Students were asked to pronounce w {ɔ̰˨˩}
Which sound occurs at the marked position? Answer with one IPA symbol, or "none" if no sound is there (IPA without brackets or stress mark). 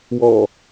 ɔ̰˨˩